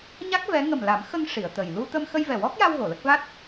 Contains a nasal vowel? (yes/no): no